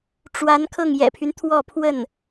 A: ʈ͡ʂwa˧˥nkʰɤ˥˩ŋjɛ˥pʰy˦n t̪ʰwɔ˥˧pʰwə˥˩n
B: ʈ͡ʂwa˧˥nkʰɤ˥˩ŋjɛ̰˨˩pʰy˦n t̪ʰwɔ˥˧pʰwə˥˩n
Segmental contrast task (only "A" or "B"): B